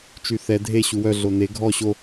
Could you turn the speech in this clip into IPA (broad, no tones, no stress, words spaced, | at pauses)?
t͡ʃyθɛ dʱe ɕuwœ ɮone ɡʱɔ ɕo